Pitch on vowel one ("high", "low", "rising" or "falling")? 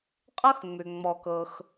high